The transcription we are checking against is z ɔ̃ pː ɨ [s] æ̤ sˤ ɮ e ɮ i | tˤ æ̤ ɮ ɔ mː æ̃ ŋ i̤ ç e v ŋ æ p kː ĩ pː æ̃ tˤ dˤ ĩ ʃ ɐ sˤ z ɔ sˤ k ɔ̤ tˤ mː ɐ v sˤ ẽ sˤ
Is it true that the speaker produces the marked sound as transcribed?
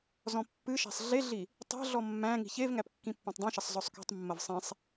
no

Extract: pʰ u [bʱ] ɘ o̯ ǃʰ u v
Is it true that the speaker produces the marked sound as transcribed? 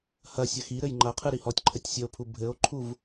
yes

